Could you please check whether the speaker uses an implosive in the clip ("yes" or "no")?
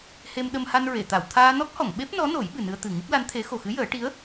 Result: yes